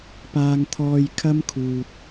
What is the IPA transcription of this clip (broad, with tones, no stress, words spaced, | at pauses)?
paː˧ŋt̪ʰɔː˧j kʰɐ˥mkʰuː˨t̚